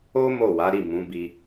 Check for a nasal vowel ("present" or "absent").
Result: present